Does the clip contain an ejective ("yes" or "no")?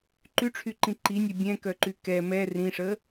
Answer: no